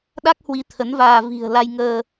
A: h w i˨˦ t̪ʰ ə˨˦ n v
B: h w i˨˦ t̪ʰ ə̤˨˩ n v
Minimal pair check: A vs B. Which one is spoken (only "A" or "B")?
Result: A